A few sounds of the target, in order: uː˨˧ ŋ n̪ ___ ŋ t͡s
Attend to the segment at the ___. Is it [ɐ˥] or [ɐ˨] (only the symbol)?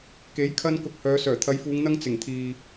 ɐ˥